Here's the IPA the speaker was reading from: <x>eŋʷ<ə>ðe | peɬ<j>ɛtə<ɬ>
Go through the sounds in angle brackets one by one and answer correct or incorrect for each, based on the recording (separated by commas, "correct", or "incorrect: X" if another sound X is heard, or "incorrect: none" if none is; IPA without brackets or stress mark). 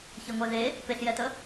incorrect: ç, incorrect: ɛ, correct, incorrect: none